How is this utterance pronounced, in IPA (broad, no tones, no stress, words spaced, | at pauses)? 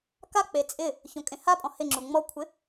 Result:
kak͡pe t͡sʼɪ | çõkʼẽhapʼɔ̃ hɪŋ͡ǁu ŋ͡mɔkʷʰɪ